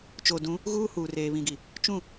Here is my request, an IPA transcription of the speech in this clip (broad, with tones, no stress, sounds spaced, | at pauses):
t͡ʃ o˨ d ũ˨˦ | ɣ uː˦ h uː˨ r eː˨ β ĩ˨ ɡ i˨ | t͡ʃ ũ˦˨